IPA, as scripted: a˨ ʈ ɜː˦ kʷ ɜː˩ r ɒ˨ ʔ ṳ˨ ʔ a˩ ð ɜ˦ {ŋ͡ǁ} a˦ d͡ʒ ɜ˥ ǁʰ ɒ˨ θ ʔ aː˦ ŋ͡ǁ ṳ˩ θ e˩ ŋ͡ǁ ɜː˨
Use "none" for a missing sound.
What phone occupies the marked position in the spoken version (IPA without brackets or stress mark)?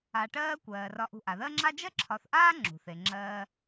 ŋ͡ǁ